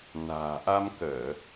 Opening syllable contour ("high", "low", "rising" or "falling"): low